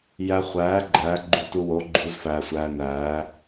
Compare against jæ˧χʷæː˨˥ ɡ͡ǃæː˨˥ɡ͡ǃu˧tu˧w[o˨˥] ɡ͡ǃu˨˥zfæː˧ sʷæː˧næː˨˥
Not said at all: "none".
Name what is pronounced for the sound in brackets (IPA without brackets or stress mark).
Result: o˨˥